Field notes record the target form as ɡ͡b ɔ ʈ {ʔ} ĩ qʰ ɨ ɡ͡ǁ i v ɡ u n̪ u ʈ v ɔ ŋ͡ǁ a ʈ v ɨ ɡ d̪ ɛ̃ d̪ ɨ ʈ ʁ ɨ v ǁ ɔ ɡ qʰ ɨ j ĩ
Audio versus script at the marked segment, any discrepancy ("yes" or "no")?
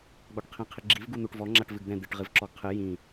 yes